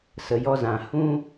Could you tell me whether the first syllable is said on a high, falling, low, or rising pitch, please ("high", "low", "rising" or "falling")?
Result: low